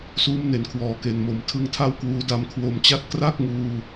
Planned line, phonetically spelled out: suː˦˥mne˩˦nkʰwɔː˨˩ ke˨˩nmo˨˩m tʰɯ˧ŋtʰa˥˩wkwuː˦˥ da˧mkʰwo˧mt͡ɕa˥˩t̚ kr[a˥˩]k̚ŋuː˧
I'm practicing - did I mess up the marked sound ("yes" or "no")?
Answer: no